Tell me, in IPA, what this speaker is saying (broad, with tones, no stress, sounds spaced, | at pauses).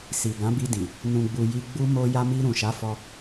s i˨ ɡ ã˨˦ b i˧ d ĩ˨ | n ũ˨ ɡ͡b u˨ j i˧ ɡ͡b u˦ m o˧ j a˧ m i˧ ɾ ũ˨ ʃ a˨˦ f ɔ˧